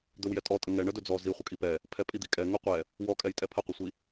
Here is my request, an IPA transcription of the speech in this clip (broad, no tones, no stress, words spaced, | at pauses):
d̪ɵwjɛtʼɔtʼə ŋɛ ɳədɵd͡zɔ zi χʷəkʼipɛ | pʰɛpʼid̪ikʼɛ ŋɵqʷɛ | wɔkʼɛj tʼɛpʰəqʷəsʷi